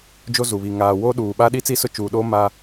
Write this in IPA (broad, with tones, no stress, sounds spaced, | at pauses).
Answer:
d͡ʒ o˦ z u˨ β i˨ ŋ aː˨ w oː˦ ɗ uː˨ ɓ aː˦ ɗ i˦ t͡s iː˦ s ʊ˦ t͡ʃ uː˨ ɗ oː˦ m aː˦